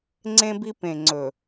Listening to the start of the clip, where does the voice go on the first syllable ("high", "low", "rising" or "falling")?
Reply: high